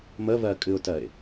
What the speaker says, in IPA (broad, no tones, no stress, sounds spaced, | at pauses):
m ə β ɜ kʼ ɨ ʊ̯ t ɜ ɪ̯